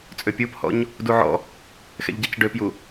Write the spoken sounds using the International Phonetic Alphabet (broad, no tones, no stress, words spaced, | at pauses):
t͡sʼøpʲuphɔ̰ɲ | duʕɔ̰ | xɛ̰ʎɟacɖøpju